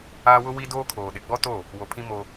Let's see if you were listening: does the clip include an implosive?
yes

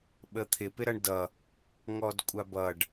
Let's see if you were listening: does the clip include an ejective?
yes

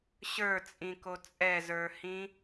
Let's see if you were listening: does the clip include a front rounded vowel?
no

